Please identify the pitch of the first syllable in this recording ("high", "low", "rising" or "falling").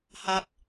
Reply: high